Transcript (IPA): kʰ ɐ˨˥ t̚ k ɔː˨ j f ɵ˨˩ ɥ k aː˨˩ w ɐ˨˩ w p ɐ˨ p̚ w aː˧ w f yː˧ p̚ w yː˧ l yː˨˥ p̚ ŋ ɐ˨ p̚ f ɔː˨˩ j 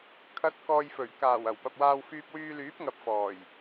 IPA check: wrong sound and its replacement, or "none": none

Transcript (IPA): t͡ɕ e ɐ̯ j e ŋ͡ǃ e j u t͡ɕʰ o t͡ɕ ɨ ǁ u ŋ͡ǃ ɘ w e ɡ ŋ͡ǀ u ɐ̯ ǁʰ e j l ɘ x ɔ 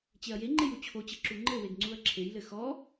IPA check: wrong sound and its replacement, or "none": none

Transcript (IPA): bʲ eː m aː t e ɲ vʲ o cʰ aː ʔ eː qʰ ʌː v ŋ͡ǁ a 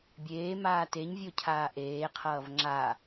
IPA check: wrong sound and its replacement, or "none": none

